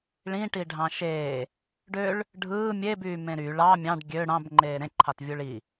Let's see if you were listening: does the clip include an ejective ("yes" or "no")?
no